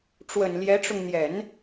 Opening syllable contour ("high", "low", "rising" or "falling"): low